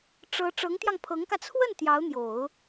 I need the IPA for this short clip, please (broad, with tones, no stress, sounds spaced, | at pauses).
ʈ͡ʂ ɤ˧˥ ʈ͡ʂ ɤ˧˥ ŋ t̪ j ɑ˧ ŋ pʰ ɤ˧˥ ŋ k ä˧ t͡sʰ w ə˥˩ n t̪ j ɑ˧˥ ʊ̯ n̪ j o˨˩˦ ʊ̯